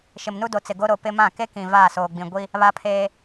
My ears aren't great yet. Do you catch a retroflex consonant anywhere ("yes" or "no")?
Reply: no